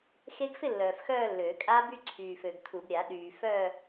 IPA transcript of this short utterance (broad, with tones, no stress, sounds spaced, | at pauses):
x e˦˥ ɡ f ɪ˥˧ lː œː˨ f x œː˥˧ lː øː˨˩˦ kʼ a˦˥ b y˥˧ ǀʰ yː˨ f ø˨ ɡ tʰ u˨˩˦ b ɾʲ a˨˩˦ ɗ yː˨ f œː˥˧